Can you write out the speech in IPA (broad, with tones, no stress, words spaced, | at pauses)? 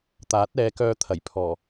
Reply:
t̪aː˨˥t̚ɛː˨˧kœː˧t̪ʰɐ˨˩j pʰɔː˨˩